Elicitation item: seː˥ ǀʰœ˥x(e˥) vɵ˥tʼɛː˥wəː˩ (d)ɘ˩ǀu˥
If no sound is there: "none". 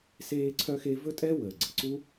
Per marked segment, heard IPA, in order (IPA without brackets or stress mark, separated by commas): e˥, ɡ͡ǀ